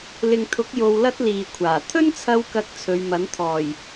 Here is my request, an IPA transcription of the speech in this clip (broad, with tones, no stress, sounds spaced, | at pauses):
l ɪ˨ ŋ t̪ʰ ʊ˨˥ k̚ j o˧ w l ɐ˥ t̚ l iː˨ kʷʰ aː˨˩ t̪ʰ ɵ˥ n t͡sʰ ɐ˧ w k ɐ˨ k̚ t͡sʰ ɵ˨˧ ɥ m ɐ˨˥ n t̪ʰ ɔː˨˩ j